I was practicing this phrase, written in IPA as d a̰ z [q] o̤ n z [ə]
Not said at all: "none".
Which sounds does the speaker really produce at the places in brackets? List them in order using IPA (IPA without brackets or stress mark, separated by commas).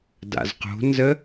q, ə